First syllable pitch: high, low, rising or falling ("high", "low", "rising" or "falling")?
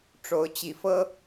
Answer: rising